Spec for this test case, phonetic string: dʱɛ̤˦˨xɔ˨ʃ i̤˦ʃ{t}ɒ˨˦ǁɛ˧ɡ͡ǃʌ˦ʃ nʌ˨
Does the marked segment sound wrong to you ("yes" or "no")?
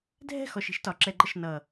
no